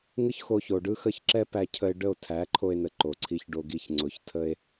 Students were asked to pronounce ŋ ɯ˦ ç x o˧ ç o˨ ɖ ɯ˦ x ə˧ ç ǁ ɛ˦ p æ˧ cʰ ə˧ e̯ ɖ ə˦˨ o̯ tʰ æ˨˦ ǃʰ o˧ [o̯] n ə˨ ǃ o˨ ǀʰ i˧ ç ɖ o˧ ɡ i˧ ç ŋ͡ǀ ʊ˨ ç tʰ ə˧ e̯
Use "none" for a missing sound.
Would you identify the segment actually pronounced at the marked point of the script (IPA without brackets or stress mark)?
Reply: e̯